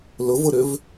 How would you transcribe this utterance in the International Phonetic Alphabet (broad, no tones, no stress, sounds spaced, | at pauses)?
l ʊ v ʊ ɾ ʏ v